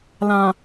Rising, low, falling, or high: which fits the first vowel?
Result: low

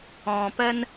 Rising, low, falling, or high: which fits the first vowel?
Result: low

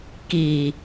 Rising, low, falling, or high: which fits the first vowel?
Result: low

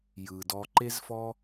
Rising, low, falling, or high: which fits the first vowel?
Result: low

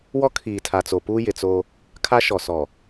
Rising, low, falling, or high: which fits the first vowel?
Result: high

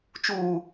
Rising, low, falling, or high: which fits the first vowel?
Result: high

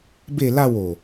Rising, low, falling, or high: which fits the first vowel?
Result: falling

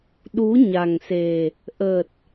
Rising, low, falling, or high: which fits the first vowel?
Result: rising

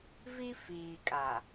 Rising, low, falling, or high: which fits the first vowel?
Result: high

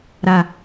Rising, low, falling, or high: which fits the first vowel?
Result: low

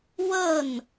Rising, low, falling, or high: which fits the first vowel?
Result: falling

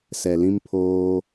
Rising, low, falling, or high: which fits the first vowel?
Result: low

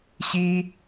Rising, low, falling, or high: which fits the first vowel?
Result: high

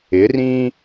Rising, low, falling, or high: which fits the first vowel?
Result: rising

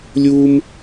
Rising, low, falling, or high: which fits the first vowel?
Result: high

